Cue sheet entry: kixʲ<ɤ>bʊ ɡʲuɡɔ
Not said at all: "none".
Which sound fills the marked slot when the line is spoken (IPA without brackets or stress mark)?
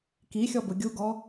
ɔ